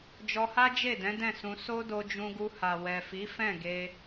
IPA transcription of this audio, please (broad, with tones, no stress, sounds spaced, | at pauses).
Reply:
d͡ʒ ɔ˧ h a˦ d͡ʒ e˦˨ d ɛ̃˨˦ d ɛ̃˦˨ s ũ˧ s o˦ d o˧ d͡ʒ ũ˧ ɡ u˧ h a˨ w ɛ˨ f i˨˦ f ɛ̃˦˨ ɡ e˧